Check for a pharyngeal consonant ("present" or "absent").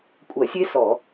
absent